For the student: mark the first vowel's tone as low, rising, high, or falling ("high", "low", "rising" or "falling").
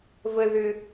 high